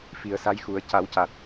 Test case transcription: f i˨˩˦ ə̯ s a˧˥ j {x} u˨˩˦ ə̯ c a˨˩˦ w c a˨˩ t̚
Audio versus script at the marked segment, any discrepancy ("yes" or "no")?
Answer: no